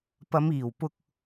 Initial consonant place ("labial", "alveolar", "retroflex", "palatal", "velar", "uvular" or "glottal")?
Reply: labial